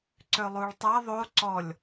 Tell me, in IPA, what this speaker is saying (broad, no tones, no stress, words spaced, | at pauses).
ǀølˠuɭtˤa ðˤo ǀɔlʲ